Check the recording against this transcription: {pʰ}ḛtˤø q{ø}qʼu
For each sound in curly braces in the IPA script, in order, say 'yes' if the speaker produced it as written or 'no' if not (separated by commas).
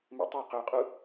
no, yes